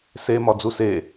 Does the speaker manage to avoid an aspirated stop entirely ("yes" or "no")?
yes